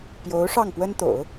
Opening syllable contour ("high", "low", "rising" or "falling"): rising